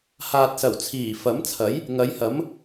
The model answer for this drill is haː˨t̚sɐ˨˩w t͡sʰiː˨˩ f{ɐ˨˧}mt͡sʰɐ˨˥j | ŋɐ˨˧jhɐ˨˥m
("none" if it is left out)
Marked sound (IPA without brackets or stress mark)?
ɐ˨˥